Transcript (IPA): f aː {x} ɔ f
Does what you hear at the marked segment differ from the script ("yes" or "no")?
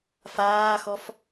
no